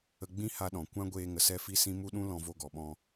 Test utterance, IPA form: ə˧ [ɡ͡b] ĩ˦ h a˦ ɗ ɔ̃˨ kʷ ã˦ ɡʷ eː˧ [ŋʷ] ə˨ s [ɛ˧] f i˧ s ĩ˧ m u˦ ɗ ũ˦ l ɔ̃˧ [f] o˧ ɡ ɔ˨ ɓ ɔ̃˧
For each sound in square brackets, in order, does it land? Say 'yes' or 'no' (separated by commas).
yes, no, yes, no